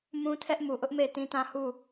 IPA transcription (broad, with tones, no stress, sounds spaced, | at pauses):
m ũ˦ tʰ ɛ˦ ʔ m u˨ ʔ ʊ˦ ʔ m e˦˨ ɪ̯ t ĩ˦ t ã˦ h u˦˨